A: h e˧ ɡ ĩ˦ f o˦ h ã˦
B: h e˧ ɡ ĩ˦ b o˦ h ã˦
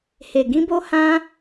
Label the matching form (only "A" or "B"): B